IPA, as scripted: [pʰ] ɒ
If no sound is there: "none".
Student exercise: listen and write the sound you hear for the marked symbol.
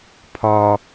pʰ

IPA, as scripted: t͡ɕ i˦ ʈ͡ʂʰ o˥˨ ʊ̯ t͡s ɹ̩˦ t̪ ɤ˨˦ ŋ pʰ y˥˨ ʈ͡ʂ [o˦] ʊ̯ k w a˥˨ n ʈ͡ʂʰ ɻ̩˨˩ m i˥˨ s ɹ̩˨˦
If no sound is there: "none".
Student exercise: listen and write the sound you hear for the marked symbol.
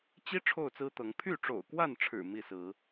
o̰˨˩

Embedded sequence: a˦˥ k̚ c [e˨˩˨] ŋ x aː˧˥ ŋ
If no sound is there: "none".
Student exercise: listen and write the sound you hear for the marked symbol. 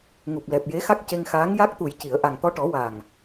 e˧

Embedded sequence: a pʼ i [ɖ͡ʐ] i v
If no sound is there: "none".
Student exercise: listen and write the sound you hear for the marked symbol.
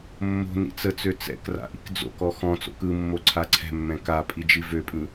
d͡ʒ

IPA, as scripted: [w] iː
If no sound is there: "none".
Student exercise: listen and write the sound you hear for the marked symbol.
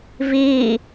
v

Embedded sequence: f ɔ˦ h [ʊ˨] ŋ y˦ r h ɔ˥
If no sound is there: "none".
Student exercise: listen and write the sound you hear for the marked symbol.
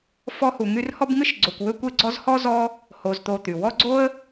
u˨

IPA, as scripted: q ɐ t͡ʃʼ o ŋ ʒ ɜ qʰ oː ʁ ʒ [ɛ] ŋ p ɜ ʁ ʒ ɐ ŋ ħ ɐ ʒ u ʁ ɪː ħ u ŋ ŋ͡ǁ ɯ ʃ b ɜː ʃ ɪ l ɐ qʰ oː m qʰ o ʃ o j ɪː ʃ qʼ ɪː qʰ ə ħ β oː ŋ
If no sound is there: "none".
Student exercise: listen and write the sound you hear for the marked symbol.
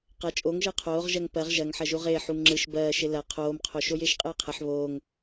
ɜ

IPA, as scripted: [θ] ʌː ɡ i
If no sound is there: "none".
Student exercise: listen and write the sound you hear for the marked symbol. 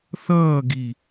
θ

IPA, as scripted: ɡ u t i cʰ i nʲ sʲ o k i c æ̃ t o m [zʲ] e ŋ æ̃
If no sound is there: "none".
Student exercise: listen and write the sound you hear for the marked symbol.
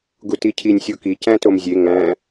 zʲ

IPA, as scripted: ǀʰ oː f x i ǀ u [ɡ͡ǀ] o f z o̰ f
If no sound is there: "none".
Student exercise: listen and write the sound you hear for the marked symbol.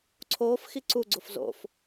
ɡ͡ǀ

